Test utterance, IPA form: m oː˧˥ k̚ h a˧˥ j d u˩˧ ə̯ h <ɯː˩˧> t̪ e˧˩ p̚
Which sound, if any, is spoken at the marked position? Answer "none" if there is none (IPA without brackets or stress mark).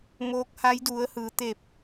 ɯː˩˧